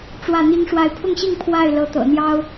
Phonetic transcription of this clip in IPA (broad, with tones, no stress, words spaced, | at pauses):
ʈ͡ʂwä˥˩n̪i˥ŋʂwa˥˧ɪ̯ pʰʊ˥˧ŋɕi˥˧ŋ pʰwa˥˩ɪ̯ lɤ˧˥t̪ɤ̰˨˩n̪jɑ˥ʊ̯